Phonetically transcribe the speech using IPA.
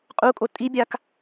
qʼ u kʼ o tʼ i bʲ a k

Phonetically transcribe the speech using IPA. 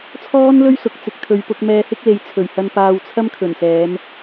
t͡sʰ ɔː˥ n l ɵ˥ ɥ s ʊ˨ k̚ t͡s ɪ˨ k̚ t̪ʰ ɵ˨ ɥ p ʊ˧ k̚ m ɛː˧ h ɪ˥ k̚ l e˨˧ j t͡sʰ ɵ˨˩ ɥ h ɐ˧ n p aː˧ w t͡sʰ ɐ˥ m kʰ ɵ˨˩ n s ɛː˨˧ m

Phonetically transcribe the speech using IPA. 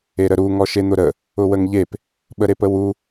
e ɾ ə ɾ u ŋ ɔ ʃ e n̪ ʊ ɾ ə | ʊ w ə ŋ ʎ e p | ɓ ə ɾ e p ə w u

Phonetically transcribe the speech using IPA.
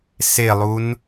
s e lˠ u n

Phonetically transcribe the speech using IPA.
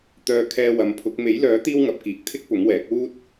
t̪ œː˧ kʰ ɛː˧ w ɐ˨˧ m pʰ ʊ˨˥ k̚ m e˨˥ j l œː˨˥ t̪ iː˥ w ŋ ɐ˨˥ p̚ k iː˨˥ k̚ t̪ʰ ɪ˥ k̚ p ʊ˨˥ ŋ w ɛː˨˥ k̚ w uː˥ t̚

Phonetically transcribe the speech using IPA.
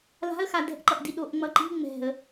l a̤ ə̯ x a d ɛ̤ ʔ ǃ ʌ ʔ d i ɗ o ʔ ŋ͡m ʌ ǃ i̤ ŋ͡m ɛ̤ ə̯

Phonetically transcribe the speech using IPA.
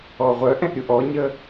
ɔ ʁʷ œ ʔ ɛ̃ ʔ ɾʲ u ʔ ɔ ɲ ə

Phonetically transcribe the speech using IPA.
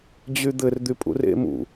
d͡ʑ y d̪ ɘ r d̪ y pʼ ṵ r ḛ m ṵ

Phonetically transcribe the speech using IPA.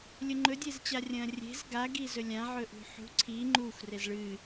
lʲ ɵ ŋ͡ǃ ɵ dʲ e z t͡ɕ a rʲ ɐ̃ː rʲ e̤ z ɡ a ɡ i z ɵ lʲ ã ʕ ɵ ʔ ṳ ħ ṳ ǀʰ i ŋ͡ǃ u xʷ r e z ɭ ɨ

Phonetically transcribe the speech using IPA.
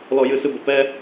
l ɔ˦ j ɨ˦ s ɨ˦ b ə˦˨ p ɛ˦

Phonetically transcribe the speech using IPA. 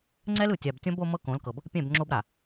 ŋ͡ǀ ɛ˦ l ɯ˨ tʲ a˨ b tʲ ɔ̃˦ b o˦ m ɤ˦ k õ˨˦ l k ɤ˨ b | pʲ ɛ̃˦˨ b ŋ͡ǁ o˦ b ɾ a˨

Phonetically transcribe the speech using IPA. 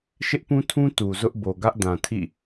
ʃ ɪ˦ ʔ p ũ˦ tʰ ũ˦ t u˨ z ʊ˦ ʔ b o˨ ɡ ä˦ ʔ d ã˨ tʰ ḭ˦˨

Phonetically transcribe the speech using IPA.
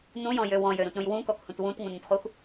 n ũ j ɔ̃ j ø w ɔ̃ j ø ɾ ũ t ɾ ũ j w ũ k ɔ k h ũ t w ũ t ŋ ũ n ũ t χ u x

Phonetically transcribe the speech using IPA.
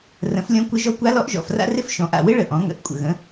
r ə̃˩˥ f lʲ ɔ̃˧˥ kʷ ɪ˧˥ ʒ ɔ˧˥ kʷ a˧˥ l ɔ˧˥ ʔ ʒ ɔ̰˨˩ f r a̰˥ r ɪ˥ f ʃ ɔ̃˩˥ ʔ a̰˨˩ w ɪ˥ ɭ ə˨˩ ʔ ɔ̃˩˥ ŋ ə̰˧˥ ʔ kʷʼ ə̰˨˩ ɣ ə̃˩˥

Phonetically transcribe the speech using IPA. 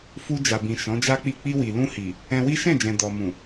f u˧ d͡ʒ a˨ b ĩ˨ ʃ ɔ̃˨˦ d͡ʒ a˦ k͡p i˦˨ k͡p i˧ w i˨ l ũ˧ h i˨ | ɛ̃˧ w i˦ ʃ ɛ̃˦˨ d͡ʒ ɛ̃˨ d ɔ˨ m ũ˨

